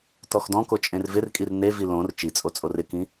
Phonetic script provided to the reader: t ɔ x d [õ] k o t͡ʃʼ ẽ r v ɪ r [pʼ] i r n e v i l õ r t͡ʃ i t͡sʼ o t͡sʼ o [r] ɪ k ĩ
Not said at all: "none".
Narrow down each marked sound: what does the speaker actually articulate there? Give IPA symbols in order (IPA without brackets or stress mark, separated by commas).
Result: ɔ̃, kʼ, r